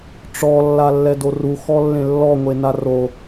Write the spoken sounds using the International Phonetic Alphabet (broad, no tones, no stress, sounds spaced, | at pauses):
ʈ͡ʂ ɔ lː a lː ɛ d o r u x ɔ lː ẽ lː ɔ ŋʷ e n a r o